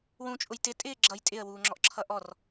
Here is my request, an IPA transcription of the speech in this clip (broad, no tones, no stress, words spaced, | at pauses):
wũt͡ʃʼʊj tɪtʼɪː ɡ͡ǁʌj tʼɪə̯wuːŋ͡ǁɔʔǁʰʌ ʔɔr